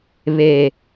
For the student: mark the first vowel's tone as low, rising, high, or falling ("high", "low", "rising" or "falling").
low